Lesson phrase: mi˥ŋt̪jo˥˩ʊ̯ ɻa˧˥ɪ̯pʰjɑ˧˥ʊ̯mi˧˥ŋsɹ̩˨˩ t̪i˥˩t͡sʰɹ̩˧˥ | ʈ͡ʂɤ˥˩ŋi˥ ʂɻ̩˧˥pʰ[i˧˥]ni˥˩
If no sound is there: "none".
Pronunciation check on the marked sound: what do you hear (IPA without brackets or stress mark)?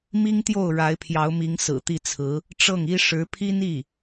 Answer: i˥